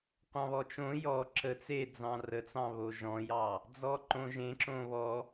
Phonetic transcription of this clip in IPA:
qʷɑ̃βɔt͡ʃõ jɔ ǁə t͡se d͡zɑ̃rət͡sɑ̃βo ʒɔ̃jɑ | d͡zɔǃõʒẽǁõ βɔ

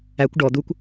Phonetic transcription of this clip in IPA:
ækʷ ɖɔ d̪ukʷ

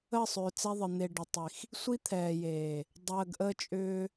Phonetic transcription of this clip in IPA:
ə˦˨sˤʏː˨ t͡sɛ˦ðˤə˨ n̪e˨ ɖʏ˨tˤi˨x | sʷi˦t̪ʰɛː˨jeː˨ | dˤəː˨ɡʔə˦t͡ʃʼʏː˦

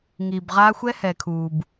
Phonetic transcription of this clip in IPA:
ŋi˨bʁa˦ xʷɛ˦hɛ˨kʰu˨b

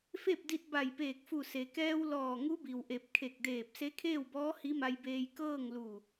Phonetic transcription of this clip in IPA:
fe˥˨p̚di˧t̚ ba˧˩jpeː˧˩k̚fu˧˩ se˩kɛː˧w lɔː˧˩ŋu˧˥bi˩wʔe˧˩p̚ kʰe˧˩k̚deː˧˩p̚ se˧˥kʰeː˥˨wbɔː˧˥ hi˧˥ma˧jbeː˧j kɤː˥˨ŋlu˧˩

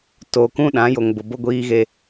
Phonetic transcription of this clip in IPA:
to˨kũ˦ ɗã˨˦jo˨ŋbʊ˨ bo˦ɡʷiː˦ɣe˦

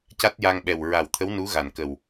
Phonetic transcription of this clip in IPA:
ca˦˥t̚ja˧ŋɓɛ˨˩w ɹa˨˩wt̪ʰə˧˥w nu˧˥ɣa˨˩n kə˨˩w

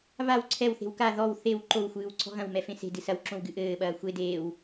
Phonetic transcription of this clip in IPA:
βaw ǀʰɛwθe̤w ka ðɔw θew ǃowxʷɨːw ǀʰɔ̤ɣɐ̃wmɛ fẽse̤dɨ sɐwǁõw ɡɨʔɘːɓɐː xʷe deːw

